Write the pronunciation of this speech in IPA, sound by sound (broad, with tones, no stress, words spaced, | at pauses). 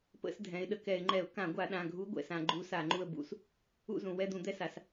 pə̰˧˩˧sdʱɛ̃˩˧ɪ̯ ɗə˩kɛ˧˩˧ɪ̯ŋ͡ǃɛ˧˩˧ʊ̯ kã˧˩˧ɡʷa˧˩˧ɗã˩˧˩ ɡʱu˧˥ɡʷɛ̰˩˧˩sã˧˩˧ ɡ͡ǃu˧˥sa˧˩˧ŋ͡ǃu˦˨ə̯ bṵ˦˨s | ṵ˦˨zũ˩ wɛ˦˨d̪ũ˧˩˧d̪ɛ˧˥ sa˩˧s